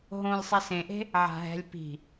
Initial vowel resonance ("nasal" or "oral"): nasal